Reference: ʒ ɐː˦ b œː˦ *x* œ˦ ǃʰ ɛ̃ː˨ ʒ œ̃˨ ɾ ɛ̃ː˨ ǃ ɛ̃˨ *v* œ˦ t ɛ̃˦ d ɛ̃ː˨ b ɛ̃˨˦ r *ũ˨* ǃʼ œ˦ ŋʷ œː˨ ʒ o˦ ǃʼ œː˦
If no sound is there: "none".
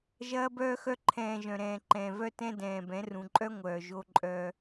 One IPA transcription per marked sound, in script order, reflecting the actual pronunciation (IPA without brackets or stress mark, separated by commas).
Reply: x, v, ũ˨